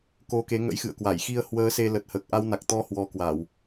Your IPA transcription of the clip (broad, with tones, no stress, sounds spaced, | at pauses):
k o˧ k e˨˦ ŋ ə̰˧˥ j x ɨ̰˧˨ ə̯ k w a˧˩ j x i˧ ə̯ h w əː˨˦ s e˧ l ə˨˩ t̚ h əː˨˩ k̚ ʔ a˧ w n a˨˩ k̚ t̪ ɔ˧ h w ɔ˧ k w a˧˩˨ w